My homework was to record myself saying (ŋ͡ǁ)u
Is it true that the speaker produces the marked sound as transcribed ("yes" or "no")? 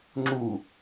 yes